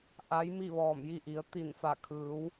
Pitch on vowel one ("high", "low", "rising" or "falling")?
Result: rising